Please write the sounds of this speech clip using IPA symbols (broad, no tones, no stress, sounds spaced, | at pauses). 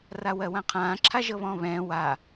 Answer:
r a w ɜ w ã qʰ ãː ǁʰ a ʒ ɤ β ɔ̃ː β ɛ̃ː w a